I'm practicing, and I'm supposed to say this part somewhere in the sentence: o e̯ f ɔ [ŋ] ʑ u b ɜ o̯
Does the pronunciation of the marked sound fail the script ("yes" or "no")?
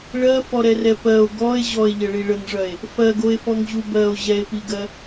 no